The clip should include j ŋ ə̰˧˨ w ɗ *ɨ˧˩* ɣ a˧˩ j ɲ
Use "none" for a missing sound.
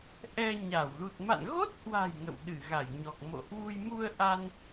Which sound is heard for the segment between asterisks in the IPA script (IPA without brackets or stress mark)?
ɨ˧˩